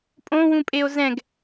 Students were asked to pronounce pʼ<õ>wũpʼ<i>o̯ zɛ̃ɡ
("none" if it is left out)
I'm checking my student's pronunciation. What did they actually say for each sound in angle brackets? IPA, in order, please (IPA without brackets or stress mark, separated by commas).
õ, e